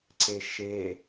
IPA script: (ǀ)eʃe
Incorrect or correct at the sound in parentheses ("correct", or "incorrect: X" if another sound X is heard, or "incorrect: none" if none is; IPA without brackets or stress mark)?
correct